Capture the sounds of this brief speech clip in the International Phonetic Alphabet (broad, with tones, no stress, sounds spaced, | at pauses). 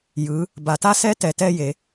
j ɯ˩˧ | b a˩˧ t a˦˥ s ɛ˦˥ t ɛ˩˧ t ɛ˦˥ j e˩˧